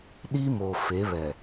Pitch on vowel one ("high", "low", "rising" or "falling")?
high